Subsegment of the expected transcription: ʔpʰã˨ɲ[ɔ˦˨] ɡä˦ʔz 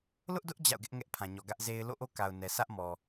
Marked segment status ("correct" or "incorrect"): incorrect